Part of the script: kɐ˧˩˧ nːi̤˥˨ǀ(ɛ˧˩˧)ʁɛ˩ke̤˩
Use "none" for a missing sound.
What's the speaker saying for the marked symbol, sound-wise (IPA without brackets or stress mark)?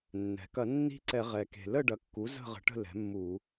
ɛ˧˩˧